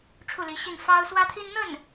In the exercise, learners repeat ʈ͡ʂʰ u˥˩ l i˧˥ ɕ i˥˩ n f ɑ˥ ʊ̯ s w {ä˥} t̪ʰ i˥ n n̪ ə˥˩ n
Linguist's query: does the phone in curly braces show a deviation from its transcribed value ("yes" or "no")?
no